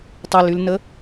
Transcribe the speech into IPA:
tˤ e l y l n ə

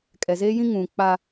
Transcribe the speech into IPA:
kʼ ɛ˨ z eː˦ j ĩ˦ ŋ ũ˨ k͡p a˦

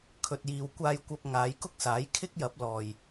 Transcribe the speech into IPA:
kʰ ɵ˧ t̚ j iː˧ w kʷ aː˧ j kʷ ɐ˧ p̚ ŋ aː˨˧ j k ʊ˥ k̚ s aː˨˥ j kʰ ɪ˥ k̚ j ɐ˨˥ p̚ l ɔː˨ j

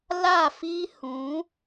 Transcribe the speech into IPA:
l a˦˨ f i˦ h ũ˨˦

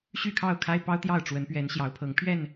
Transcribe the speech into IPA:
ɕ y˥˨ kʰ ɑ˥˨ ʊ̯ kʰ a˦ ɪ̯ p ɑ˦ ʊ̯ t̪ j ɑ˥˨ ʊ̯ ʈ͡ʂ w ə˨˦ n p ɥ ɛ˨˦ n ɕ j ɑ˨˦ ʊ̯ pʰ ɤ˨˦ ŋ pʰ ɥ ɛ˥˨ n

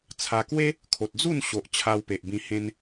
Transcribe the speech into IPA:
t͡sʰ a˧ k w e˦ | kʰ o˨ t̚ d͡z u˥˧ n ɕ o˨ ʔ t͡ɕʰ a˧ w p e˨ ʔ b ĩ˧ h ẽ˧ n

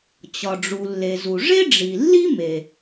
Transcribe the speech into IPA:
t͡ɕ ɒ˩ ɖ͡ʐ u˩ lː e˩ z u˩ ʐ e˥ ɖ͡ʐ i˩ lː i˥ m e˩

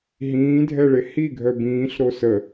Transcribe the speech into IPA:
ɦ ĩː dʱ ɛ ɭ e h i ɡʱ œ b ĩː ɬ ɾ o s ə

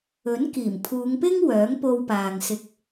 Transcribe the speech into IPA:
ɵ˨˥ n k iː˨˩ m pʰ uː˨˧ ŋ p ɪ˥ ŋ w œː˨˥ ŋ p o˧ w p aː˨ ŋ s ɪ˧ k̚

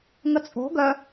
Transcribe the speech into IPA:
ŋ ə t͡sʼ o̤ ɡ œ

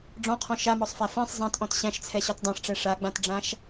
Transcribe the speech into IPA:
ɖ͡ʐ ɔ̃ qʰ ɔ̃ ʃ a m ɔ sˤ f æ f ɛ̃ sˤ zˤ æ̃ t ʔ ɔ̃ t ɕ æ̃ ʃ t͡sʰ ɛ ɕ ɔ t dˤ æ̃ ʂ ʈ͡ʂ ɛ ʂ a ɡ͡b ã t ɖ͡ʐ ã ʃ

